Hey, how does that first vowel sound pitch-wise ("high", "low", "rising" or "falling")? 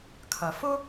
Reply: low